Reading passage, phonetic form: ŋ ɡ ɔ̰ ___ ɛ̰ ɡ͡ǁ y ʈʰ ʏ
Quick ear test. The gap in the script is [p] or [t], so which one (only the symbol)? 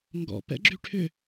p